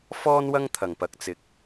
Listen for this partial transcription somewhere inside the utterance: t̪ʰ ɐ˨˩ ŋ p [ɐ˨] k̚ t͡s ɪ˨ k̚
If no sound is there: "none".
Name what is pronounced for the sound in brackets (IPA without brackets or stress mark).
ɐ˨